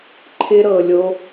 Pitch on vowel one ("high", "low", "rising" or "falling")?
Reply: high